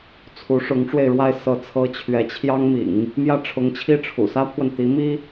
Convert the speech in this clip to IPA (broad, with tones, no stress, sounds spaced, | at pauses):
t͡sʰ u˧˥ ʂ ʊ˧˥ ŋ ʈ͡ʂ w e˧ ɪ̯ ɻ w a˥˧ ɪ̯ s ɤ˥˩ t͡sʰ ɤ˥ t͡ɕʰ ɥ ɛ˧˥ t͡ɕʰ j ɑ˥ ŋ m ḭ˨˩˦ ŋ | m j ä˥˩ ʈ͡ʂʰ ʊ˧˥ ŋ t͡ɕʰ i˥˩ ʈ͡ʂʰ ṵ˨˩ s ä˥ pʰ w ə˨ n t̪ i˧˥ m i˥